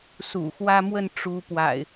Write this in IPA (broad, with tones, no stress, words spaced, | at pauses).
sṵ˨˩xwä˦ mwə˥˨n ʈ͡ʂu˨˦ pwa̰˨˩ɪ̯